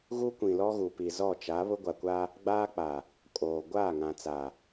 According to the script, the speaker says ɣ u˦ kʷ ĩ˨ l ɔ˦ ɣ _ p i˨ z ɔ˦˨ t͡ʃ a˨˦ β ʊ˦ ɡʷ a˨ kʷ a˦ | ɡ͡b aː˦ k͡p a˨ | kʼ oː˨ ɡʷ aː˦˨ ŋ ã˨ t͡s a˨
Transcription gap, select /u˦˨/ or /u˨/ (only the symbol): u˨